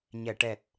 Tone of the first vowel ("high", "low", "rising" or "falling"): low